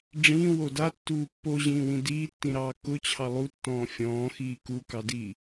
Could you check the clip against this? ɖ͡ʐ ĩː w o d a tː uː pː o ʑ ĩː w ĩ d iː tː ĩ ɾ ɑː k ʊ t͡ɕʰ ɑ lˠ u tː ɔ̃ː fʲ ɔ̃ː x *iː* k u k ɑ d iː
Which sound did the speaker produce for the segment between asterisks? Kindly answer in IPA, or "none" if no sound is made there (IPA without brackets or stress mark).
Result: iː